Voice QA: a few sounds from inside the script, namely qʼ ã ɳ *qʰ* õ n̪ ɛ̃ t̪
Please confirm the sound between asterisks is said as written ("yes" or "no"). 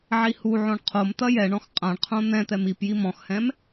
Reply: yes